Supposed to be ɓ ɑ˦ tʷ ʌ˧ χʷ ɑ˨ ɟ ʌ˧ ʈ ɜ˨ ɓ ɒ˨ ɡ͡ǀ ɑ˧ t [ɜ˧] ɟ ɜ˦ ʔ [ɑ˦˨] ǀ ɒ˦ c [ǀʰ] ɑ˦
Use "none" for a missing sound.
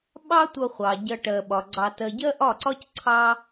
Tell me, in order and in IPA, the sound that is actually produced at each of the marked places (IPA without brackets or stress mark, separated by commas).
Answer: ɜ˧, ɒ˦˨, ǀʰ